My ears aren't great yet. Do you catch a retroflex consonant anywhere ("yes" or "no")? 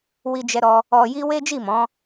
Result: no